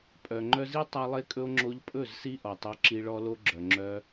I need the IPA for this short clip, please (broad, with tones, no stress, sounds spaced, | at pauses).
pʼ œ˨ ŋ͡ǃ œ˧ z i˦ tˤ ɑ˦ lˠ e˦ kʼ ɵ˦ o̯ ŋ͡ǁ o˧ ʎ pʼ ɵ˦˨ z s i˦ ʔ ɔ˨ tˤ œ˧ ǁ i˧ ɭ ɔ˦ l o˦ ɡ͡ǁ œ˨ ŋ͡ǁ œ˧